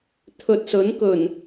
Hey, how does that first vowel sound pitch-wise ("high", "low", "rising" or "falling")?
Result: low